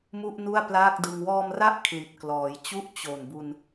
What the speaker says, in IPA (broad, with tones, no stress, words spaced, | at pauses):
mu˥˩ʔnu˥˩a̯plaː˥˩k̚dɯ˧ŋ wɔː˧mra˦˥ʔ kʰli˨˩t̚klɔː˩˦jt͡ɕu˥˩ʔ t͡ɕo˨˩nbu˧n